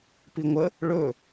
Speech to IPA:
p i ŋʷ ə | ɭ ɵ

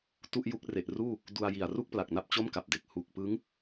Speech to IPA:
t u˥˩ ʔ j u˦˥ k̚ r e˨˩ ʔ r uː˥˩ | d u˧ a̯ j i˨˩ a̯ r u˥˩ k̚ p l a˨˩ k̚ n a˥˩ p̚ t͡ɕ o˥˩ m k a˨˩ p̚ d e˨˩ k̚ h u˨˩ k̚ p ɯ˦˥ ŋ

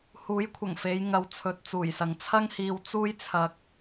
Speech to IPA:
h uː˨˥ j kʷʰ ɐ˨˩ ŋ f e˨˧ j ŋ ɐ˨˧ w t͡sʰ ɵ˨ t̚ t͡s uː˨˩ j s ɐ˨ ŋ t͡sʰ ɐ˥ ŋ h iː˧ w t͡s uː˥ j t͡sʰ ɐ˧ k̚

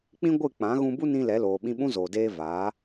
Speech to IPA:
k͡p ĩ˦ ɡʷ ɨ˦˨ k͡p ã˨˦ ɣ ũ˧ b u˦ n ĩ˧ l ɛ˨˦ l oː˨ ɓ ĩ˧ ɓ ũ˦ z oː˨ d eː˧ v aː˨˦

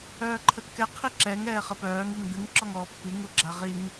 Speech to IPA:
œː ǃʰ ə kː ɛ qʰ i ǁ ɛ ŋ ɛː χ ə p œː ŋ i ŋ d̪ ɨ ŋ ǁ ɔ ŋ ɔː pː i ŋ u ɡ͡ǁ a ʁ i ŋ

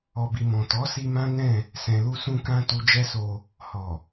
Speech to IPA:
ɔ˨ b i˨ m ɔ̃˨ t ɔ˨˦ s i˧ m ã˦ n ɛ̃˦˨ | s ɛ̃˨ l u˧ s ũ˧ k ã˧ t u˧ d͡ʒ ɛ˦ s o˧ | h ɔ˨

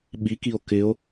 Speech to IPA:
ɓ i k i o̯ k ɪ o̯

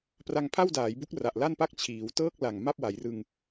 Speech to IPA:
p r a˧ ŋ pʰ a˥˩ w d aː˩˦ j b u˦˥ k̚ r a˨˩ ʔ l a˥˩ n p a˥˩ k̚ t͡ɕʰ iː˩˦ w t ɤː˥˩ k̚ l a˨˩ ŋ m a˥˩ p̚ w a˩˦ j r ɯ˧ ŋ

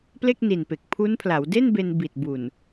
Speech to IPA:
p l e˥˩ k̚ n i˨˩ n p e˨˩ k̚ pʰ u˦˥ n pʰ l a˩˦ w d e˥˩ n b e˧ n b i˨˩ t̚ b u˨˩ n

